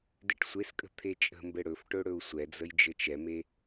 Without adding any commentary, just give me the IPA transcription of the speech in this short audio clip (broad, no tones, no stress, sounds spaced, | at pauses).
d e ʈ sʷ e s kʼ ə̤ t̪ʰ e t͡ʃʼ ə̤ m b ɘ ɽ ɵ f ʈ ɵ ɽ ɵ u̯ sʷ ɛ d͡z ə j d͡ʒ ɘ t͡ʃ ɛ m e